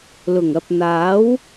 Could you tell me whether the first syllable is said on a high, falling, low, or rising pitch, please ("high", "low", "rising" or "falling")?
low